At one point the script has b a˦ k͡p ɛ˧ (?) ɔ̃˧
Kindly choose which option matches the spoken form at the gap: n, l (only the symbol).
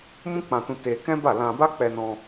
n